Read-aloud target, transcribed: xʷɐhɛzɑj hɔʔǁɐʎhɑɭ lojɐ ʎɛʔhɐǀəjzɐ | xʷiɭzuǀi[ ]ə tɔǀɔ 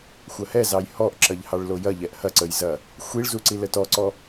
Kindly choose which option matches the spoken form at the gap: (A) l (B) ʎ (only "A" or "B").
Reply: A